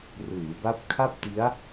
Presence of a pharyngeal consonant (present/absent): absent